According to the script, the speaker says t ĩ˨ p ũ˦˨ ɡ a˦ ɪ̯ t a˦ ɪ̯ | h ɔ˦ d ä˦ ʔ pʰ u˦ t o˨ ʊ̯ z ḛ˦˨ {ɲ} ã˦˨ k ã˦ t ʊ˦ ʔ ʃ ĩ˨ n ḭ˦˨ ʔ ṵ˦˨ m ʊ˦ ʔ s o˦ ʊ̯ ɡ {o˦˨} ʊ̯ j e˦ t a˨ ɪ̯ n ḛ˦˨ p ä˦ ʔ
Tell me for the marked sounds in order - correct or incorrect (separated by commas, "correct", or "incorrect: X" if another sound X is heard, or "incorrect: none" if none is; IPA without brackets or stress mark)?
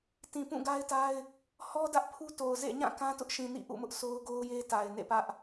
correct, incorrect: o˦